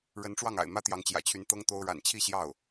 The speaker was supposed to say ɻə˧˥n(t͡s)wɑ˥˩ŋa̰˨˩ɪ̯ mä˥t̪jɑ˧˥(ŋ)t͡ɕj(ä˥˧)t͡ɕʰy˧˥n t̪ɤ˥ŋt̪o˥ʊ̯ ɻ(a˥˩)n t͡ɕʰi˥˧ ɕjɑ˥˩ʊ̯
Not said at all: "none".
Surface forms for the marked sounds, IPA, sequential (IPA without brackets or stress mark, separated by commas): ʈ͡ʂ, ŋ, ä̰˨˩, a̰˨˩